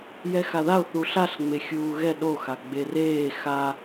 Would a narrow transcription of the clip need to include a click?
no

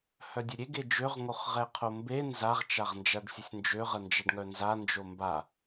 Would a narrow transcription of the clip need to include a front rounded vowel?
yes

